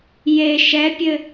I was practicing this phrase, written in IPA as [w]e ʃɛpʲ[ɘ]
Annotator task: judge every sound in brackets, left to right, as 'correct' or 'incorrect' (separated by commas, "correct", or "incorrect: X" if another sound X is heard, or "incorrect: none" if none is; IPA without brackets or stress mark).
incorrect: j, correct